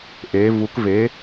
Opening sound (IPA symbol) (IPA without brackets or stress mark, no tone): ʔ